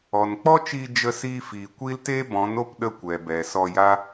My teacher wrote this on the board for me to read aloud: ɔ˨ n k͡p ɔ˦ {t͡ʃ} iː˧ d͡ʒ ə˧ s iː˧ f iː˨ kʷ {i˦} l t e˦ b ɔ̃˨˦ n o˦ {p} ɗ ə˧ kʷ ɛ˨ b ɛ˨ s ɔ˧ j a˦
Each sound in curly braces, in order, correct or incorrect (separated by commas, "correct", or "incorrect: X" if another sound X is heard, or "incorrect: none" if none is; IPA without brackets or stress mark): correct, correct, correct